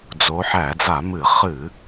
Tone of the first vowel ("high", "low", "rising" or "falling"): rising